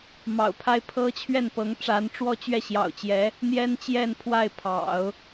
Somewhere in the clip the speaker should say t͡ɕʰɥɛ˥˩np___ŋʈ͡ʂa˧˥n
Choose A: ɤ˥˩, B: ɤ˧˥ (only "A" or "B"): B